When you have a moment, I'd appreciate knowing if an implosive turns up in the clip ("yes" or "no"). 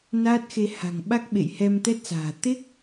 yes